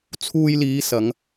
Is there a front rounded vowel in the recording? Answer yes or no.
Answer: no